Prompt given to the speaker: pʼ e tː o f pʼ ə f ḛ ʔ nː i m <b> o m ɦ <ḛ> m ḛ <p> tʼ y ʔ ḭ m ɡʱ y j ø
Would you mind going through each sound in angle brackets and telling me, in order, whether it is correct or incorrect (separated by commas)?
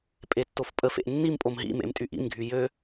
incorrect, incorrect, incorrect